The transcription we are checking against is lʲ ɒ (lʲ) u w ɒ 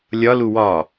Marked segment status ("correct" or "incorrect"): incorrect